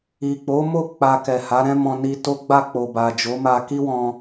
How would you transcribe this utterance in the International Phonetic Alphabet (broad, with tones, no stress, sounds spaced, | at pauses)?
i˨ k͡p o˨˦ m o˦˨ k͡p a˧ k ɛ˨ h a˨˦ ɾ ɛ̃˦ m ɔ̃˧ n i˧ t o˦ ɡ͡b a˦˨ k͡p o˨ b a˨ d͡ʒ o˨˦ m a˧ k i˦ w ɔ̃˧